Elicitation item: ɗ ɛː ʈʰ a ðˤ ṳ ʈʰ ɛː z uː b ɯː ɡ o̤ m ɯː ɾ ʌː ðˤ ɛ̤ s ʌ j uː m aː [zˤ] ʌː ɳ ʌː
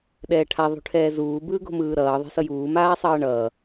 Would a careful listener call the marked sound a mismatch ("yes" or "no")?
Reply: yes